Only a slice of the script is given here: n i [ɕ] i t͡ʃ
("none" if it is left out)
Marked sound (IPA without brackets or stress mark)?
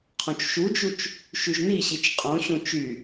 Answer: ɕ